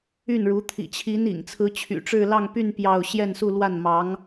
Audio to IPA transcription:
y˥˩ n ɻ u˧˥ t̪ʰ ḭ˨˩ t͡ɕʰ i˧˥ n ḭ˨˩ ŋ t͡sʰ ɹ̩˧˥ t͡ɕʰ y̰˨˩ ʈ͡ʂ ɻ̩˥˧ l ɑ˥˧ ŋ p y˥˧ n p j ɑ˥˧ ʊ̯ ɕ j ɛ˥˧ n s u˥˧ l w a˥˩ n m ɑ˧˥ ŋ

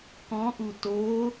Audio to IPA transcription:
k ɔ̃ ʔ u t o

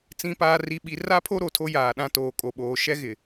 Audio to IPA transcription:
t͡s ĩ˨ p aː˨ r i˨ ɓ i˨ r a˦ pʰ o˦ ɾ o˨ tʰ o˦ j aː˨ ɗ ã˦ t oː˨ kʼ o˨ ɓ oː˨ ʃ ɛ˦ ɣ ɪ˨

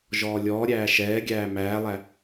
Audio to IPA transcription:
ʒ ɔː lʲ ɔː ɾʲ æː ʃ ɛː ɡʲ æː m æː lˠ æ

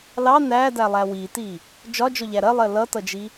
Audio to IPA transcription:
l ɑ n æ d æ lˠ æ w i t i | d͡ʒ ɒ d͡ʒ ɔ ʎ æ ɾ ɜ lˠ ɜ l ʌ t ʌ d͡ʒ i

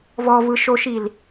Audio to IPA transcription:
v ɔ v ɯ ʃ o ʃ i l

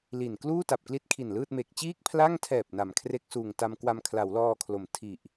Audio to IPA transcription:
l i˨˩ n k l uː˥˩ t a˨˩ p̚ k l i˦˥ t̚ kʰ i˨˩ n l ɯː˥˩ t̚ m e˨˩ k̚ t͡ɕ iː˥˩ k̚ pʰ l a˥˩ ŋ tʰ ɛː˨˩ p̚ n a˩˦ m kʰ r e˦˥ k̚ s uː˨˩ ŋ t a˧ m k w a˧ m kʰ l a˩˦ w l ɔː˧ kʰ l o˩˦ m tʰ i˨˩ ʔ

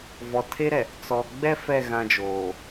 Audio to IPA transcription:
v ɔ˨ tʰ e˦ ɾ ɛ˨ | t͡s ɔ˨ ɡ͡b ɛ˦ f ɛ˦˨ ɣ ã˦ d͡ʒ oː˨

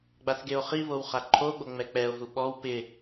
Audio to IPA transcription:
ɡ͡b a θ ɡ e o̯ χ i β o w χ a ǃʰ o ɡ͡b o ŋ͡m ɛ k͡p ɛ o̯ ɦ u ɓ ɔ w p ɪ

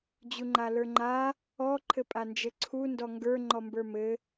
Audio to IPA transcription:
d͡ʑ u ŋ͡ǃ a l ə˞ ŋ͡ǃ a | ɔ ǃʰ ɘ pʼ a n d͡ʒ ɘ ǀʰ u n d ɔ ŋ ɡ ə˞ ŋ͡ǃ ɔ m b ə˞ m ɘ

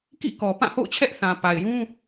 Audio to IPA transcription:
k ḭ˦˨ k ɔ˨ p ã˦˨ h o̰˦˨ ʊ̯ t͡ɕʰ ɛ˦ ʔ θ ã˨ p a˨ ɪ̯ j ũ˦

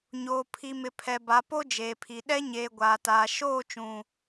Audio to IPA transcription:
ɲ oː˨ pʰ i˨ m ɪ˨ pʰ ɛ˨ b a˨˦ p o˦ d͡ʒ eː˨ pʰ i˨ ɗ ɛ˦ ɲ eː˨ ɡʷ aː˨ t aː˨ ʃ oː˦˨ t͡ʃ ũ˨

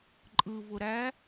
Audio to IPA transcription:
ǃʼ ɯ v ʊ ɾ æ

